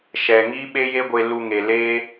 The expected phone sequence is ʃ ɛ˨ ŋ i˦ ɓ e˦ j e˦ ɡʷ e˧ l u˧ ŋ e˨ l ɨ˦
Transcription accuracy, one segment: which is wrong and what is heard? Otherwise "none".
ɨ˦ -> e˦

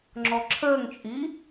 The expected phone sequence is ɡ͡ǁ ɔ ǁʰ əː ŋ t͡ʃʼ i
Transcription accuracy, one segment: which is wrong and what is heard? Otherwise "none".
ɡ͡ǁ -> ŋ͡ǁ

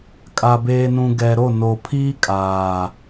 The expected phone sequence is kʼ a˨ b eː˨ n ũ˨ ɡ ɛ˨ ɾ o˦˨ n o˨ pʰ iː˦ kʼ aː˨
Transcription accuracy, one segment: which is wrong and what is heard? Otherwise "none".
none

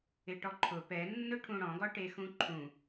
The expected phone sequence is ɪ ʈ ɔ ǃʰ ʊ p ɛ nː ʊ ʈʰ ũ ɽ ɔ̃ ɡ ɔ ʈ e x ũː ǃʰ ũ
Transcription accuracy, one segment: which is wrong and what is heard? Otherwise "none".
ũː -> ũ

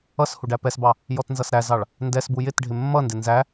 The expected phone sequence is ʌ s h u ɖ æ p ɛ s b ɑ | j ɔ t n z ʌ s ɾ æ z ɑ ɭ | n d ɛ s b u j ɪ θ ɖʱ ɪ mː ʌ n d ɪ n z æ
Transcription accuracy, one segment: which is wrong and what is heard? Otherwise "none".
θ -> t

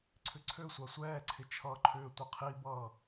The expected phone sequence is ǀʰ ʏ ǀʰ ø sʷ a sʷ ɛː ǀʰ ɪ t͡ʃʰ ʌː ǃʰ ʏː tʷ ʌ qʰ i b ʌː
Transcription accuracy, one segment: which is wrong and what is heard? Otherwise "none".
none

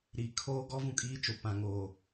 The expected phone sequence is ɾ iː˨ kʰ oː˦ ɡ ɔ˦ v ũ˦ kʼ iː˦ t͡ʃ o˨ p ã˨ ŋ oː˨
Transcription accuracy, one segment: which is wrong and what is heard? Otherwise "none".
none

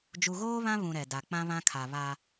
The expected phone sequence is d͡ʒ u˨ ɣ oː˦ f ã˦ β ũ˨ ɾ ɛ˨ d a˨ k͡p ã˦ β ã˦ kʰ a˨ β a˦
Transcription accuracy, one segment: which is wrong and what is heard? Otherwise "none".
f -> β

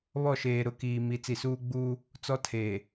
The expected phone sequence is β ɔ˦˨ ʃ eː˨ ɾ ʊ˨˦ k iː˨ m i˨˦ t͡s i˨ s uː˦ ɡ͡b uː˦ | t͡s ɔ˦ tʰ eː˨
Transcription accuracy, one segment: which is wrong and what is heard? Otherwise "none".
none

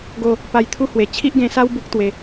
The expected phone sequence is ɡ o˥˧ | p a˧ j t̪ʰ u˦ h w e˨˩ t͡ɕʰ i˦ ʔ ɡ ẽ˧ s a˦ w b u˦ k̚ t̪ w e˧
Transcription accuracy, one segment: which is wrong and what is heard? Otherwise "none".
none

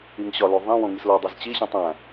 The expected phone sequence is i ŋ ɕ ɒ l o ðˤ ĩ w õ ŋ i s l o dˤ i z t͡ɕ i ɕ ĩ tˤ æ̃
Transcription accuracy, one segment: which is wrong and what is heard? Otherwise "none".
none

